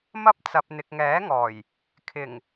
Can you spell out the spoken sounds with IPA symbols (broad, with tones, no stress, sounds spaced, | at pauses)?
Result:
m ɐ˥ p̚ t͡s ɐ˨ p̚ n̪ ɪ˨ k̚ ŋ ɛː˨˥ ŋ ɔː˨˩ j | kʰ ɪ˨˩ ŋ